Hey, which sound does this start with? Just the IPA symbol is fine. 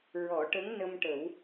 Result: ɹ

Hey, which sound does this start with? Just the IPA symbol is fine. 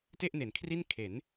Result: t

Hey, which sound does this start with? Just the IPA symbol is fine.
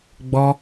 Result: ɡ͡b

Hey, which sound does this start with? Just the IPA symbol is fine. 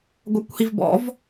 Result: ɡʷ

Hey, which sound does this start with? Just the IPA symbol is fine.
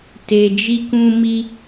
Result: t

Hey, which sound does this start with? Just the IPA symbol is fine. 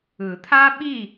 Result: ɯ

